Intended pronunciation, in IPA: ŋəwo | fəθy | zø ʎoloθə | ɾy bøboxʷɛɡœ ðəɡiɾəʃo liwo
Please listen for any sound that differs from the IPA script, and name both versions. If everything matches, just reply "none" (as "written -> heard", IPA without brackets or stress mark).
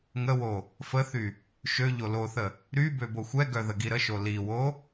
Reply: z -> ʃ